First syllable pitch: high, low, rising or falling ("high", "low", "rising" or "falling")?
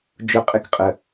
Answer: high